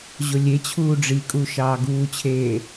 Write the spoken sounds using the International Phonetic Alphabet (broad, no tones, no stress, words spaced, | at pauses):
ʑolʲet͡ɕʰuː ɖ͡ʐikʼu ʃɑːɡuːt͡ɕʰeː